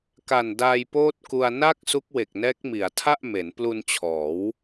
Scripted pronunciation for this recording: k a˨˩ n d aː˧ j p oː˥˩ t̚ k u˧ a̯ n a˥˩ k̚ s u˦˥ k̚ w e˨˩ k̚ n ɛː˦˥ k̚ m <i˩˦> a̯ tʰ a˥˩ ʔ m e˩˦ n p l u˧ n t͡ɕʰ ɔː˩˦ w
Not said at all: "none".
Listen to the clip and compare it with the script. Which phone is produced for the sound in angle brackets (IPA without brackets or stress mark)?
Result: i˩˦